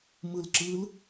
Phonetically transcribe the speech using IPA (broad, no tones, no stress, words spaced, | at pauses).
mɯlǁɯl